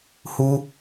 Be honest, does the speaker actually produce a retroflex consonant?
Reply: no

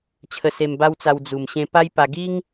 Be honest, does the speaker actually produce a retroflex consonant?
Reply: no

